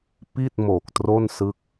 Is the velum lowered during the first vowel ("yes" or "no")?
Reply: no